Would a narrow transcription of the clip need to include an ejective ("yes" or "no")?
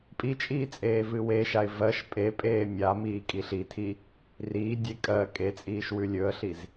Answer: yes